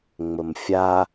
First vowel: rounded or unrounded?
unrounded